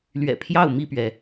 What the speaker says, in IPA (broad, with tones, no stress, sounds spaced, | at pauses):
l ɥ ɛ̰˨˩ pʰ j ɑ˥˨ ʊ̯ m i˥˨ p ɥ ɛ˩